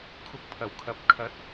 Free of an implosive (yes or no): yes